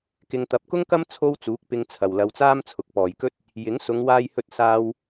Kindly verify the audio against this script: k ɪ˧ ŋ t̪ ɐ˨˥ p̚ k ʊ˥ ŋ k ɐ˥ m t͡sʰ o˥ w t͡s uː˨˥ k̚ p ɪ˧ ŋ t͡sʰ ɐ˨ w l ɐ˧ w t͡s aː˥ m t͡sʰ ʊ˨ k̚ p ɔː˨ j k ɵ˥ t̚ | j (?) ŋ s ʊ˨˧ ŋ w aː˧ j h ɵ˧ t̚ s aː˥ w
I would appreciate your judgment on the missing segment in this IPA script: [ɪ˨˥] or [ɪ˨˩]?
ɪ˨˥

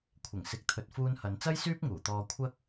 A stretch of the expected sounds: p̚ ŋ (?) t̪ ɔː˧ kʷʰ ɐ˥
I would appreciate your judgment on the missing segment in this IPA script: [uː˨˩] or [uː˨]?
uː˨˩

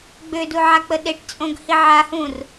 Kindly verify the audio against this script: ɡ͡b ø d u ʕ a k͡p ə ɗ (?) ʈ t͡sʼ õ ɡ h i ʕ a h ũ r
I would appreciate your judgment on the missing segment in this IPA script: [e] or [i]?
e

